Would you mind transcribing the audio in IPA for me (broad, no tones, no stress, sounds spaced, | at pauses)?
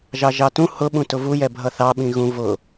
ʒ ɑ ʒ ɑ t ũ h ʊ ɓ ũ t ʊ v u j ɛ bʱ ʌ θ ɑ ɓ ĩ ɣ ũ v ʊ